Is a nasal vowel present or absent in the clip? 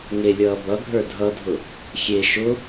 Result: absent